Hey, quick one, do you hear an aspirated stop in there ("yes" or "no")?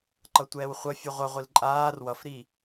no